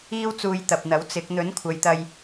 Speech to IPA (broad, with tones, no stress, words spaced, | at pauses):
iː˥wt͡suː˧j t̪ɐ˨p̚n̪ɐ˨˥wt͡sɪ˨˥k̚ n̪ɵ˨˥nkʷʰɐ˨˧jt̪ɐ˧j